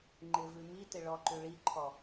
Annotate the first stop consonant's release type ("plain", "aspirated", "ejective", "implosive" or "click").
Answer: click